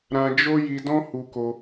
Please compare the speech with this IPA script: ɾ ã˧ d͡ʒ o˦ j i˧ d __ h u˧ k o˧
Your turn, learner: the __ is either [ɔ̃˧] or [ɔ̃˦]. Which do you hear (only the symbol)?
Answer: ɔ̃˦